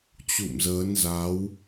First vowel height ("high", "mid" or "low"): high